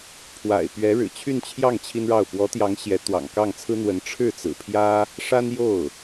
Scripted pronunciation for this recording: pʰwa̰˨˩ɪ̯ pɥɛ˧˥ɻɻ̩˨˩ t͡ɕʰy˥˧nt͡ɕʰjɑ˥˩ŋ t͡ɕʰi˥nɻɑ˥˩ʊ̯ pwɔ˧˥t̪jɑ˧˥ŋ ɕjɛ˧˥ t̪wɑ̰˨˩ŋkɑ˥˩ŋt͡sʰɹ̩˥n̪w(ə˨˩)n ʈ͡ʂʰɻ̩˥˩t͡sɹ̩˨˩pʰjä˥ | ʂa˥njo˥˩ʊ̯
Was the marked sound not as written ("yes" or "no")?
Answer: yes